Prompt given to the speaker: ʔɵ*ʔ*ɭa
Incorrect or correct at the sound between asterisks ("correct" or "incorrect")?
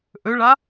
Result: incorrect